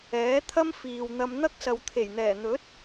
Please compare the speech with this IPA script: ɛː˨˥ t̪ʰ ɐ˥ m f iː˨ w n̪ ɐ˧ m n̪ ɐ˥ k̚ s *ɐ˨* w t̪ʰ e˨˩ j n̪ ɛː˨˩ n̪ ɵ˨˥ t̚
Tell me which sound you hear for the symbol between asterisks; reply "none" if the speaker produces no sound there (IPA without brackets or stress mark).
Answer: ɐ˨